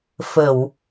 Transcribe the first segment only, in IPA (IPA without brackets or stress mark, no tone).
f